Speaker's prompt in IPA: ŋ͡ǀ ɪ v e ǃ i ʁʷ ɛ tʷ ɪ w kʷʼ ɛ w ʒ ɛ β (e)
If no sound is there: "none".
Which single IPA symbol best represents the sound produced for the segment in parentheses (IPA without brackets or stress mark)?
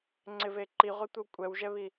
i